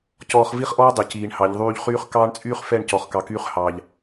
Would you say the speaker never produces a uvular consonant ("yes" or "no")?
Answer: no